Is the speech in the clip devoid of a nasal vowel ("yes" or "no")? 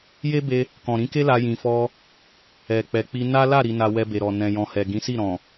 no